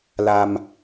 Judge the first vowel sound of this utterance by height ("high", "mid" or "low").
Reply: low